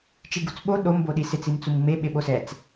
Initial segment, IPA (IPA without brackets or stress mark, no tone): t͡ʃ